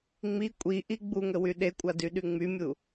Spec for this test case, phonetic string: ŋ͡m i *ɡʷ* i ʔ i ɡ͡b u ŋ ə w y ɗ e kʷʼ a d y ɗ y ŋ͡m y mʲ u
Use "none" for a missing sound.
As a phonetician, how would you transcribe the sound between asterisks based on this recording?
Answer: kʷʼ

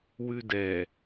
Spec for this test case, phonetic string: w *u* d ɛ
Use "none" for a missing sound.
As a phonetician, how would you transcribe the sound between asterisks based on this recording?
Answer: ʉ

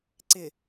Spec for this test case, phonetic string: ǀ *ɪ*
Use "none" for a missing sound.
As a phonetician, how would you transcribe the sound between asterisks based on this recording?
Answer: ɪ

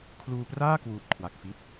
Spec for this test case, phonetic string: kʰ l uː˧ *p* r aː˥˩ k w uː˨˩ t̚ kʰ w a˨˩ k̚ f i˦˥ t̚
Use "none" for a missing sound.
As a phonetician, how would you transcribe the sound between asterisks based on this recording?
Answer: p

